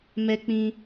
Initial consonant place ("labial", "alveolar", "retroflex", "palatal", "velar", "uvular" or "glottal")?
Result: labial